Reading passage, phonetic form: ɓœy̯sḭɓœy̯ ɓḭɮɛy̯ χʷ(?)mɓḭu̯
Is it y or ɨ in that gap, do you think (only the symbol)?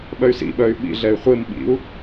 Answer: ɨ